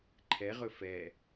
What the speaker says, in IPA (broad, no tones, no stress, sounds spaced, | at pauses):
ǃʰ ɛ ʁ ɵ f ɛ